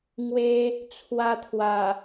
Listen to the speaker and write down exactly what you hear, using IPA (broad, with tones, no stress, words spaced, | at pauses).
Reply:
ŋwe˧ | t͡sʰwa˧t̪ʰwa˨˩